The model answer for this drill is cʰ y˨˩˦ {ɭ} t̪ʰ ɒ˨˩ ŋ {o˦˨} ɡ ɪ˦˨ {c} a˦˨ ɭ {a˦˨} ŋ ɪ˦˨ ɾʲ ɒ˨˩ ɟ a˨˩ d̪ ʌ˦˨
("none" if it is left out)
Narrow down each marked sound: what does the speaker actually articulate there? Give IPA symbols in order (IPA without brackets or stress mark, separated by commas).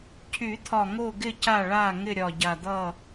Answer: none, o˦˨, c, a˦˨